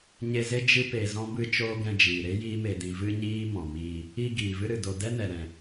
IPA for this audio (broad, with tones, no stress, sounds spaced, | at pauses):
ɲ e˧ z e˦ d͡ʒ ɨ˦ p e˧ z ɔ̃˦ b ɨ˦ t͡ʃ oː˦ ɡ ɛ̃˧ d͡ʒ iː˨ ɾ e˦ j iː˦ m e˧ d ĩ˧ v ɨ˦ ɲ iː˦ m ɔ̃˨ m iː˧ | i˧ ɡ iː˨ v ɨ˦ ɾ ɨ˨ d o˧ d ɛ˦ n ɛ˨ ɾ ɛ̃˨